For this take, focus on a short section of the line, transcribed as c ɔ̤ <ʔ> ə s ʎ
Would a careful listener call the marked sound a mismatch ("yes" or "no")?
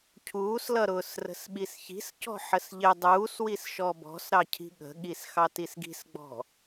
yes